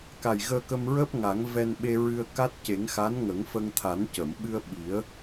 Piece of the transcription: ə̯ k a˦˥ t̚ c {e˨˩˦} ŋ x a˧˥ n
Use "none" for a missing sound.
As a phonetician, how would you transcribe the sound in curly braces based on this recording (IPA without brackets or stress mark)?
e˨˩˦